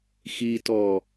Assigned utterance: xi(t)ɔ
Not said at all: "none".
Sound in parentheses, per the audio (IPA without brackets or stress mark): t